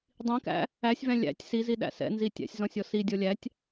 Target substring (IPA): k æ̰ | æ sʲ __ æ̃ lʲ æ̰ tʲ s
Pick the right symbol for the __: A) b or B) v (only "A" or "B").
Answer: B